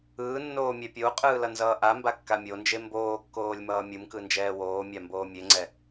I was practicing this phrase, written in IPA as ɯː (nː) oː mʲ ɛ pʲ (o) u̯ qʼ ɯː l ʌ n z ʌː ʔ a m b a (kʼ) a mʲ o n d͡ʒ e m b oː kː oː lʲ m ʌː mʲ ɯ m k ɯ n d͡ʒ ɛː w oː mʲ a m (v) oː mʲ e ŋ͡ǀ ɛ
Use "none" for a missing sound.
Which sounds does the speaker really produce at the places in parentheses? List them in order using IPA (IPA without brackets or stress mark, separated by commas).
nː, o, kː, b